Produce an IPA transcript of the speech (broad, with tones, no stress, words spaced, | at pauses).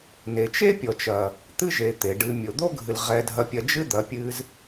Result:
ne˨t͡ʃe˦pʲɔ˨t͡ʃɐ˨ | t̪ɨ˦ʒe˨ t̪e˨ɖɨ˧ mʲo˨d̪o˦ɡʱɨ˨l ʁɛ˧dʱɐ˧pʲɐ˧ d͡ʒɨ˦d̪ɐ˨˦pʲɨ˧z